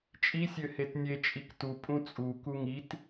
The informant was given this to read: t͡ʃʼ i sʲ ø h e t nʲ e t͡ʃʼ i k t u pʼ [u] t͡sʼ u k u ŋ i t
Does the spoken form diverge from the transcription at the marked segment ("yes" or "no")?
yes